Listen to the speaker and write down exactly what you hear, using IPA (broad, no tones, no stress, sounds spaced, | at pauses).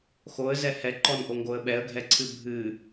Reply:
x o ə̯ z ɛ h ɛ ǃ ɔ n ʔ o ŋ ɡ o ə̯ ɓ ɛ ə̯ ɡʱ ɛ ǀʰ ɨ bʱ ɨ